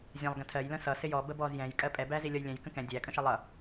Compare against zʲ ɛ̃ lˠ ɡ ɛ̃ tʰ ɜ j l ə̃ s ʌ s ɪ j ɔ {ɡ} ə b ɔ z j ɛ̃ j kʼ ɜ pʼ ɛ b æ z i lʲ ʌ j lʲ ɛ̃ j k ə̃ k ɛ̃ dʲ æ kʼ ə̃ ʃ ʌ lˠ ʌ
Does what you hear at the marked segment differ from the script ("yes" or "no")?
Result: yes